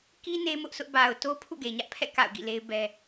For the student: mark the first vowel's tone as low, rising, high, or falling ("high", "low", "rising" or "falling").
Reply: high